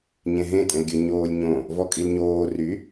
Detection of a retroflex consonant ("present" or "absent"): absent